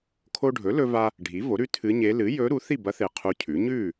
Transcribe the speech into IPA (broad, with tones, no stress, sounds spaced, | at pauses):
kʰ o˧ ɖʱ ɵ˩˥ l ɵ˧ v a˧ | ɖʱ i˩˥ v o˩˥ ɾ ʉ˧˥ tʰ ɨ˧˥ ɲ e˧˥ l ɨ˩˥ j ɵ˧˥ ɾ u˩˥ θ i˥˨ b ɐ˧˥ θ e˧ qʰ u˧˥ cʰ ʉ˩˥ ɲ ʉ˥˨